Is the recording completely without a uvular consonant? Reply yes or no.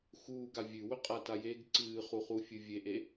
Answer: no